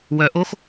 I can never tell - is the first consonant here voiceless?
no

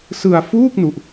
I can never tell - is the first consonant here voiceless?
yes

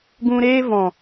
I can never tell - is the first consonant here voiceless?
no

